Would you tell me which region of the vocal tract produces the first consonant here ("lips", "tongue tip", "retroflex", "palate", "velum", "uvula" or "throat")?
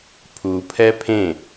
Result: lips